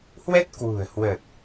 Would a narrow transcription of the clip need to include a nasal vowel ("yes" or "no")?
no